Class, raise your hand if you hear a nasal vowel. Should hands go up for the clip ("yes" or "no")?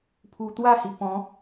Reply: yes